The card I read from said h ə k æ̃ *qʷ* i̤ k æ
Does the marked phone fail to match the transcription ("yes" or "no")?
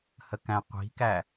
no